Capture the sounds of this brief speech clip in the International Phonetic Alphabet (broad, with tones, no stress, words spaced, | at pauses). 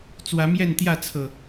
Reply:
t͡swä˨˦mjɛ˥˨nt̪jä˥˨t͡sʰɤ˨˩